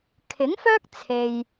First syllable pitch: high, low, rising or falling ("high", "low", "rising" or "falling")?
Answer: rising